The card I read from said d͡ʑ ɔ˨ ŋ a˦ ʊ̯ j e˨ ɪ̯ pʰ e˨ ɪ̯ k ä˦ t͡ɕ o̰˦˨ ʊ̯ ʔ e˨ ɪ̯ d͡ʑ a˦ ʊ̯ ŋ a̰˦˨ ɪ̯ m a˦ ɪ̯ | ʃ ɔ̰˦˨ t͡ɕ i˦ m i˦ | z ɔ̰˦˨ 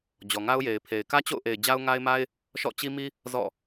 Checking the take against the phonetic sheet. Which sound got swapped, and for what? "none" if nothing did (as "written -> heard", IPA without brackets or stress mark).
a̰˦˨ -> a˦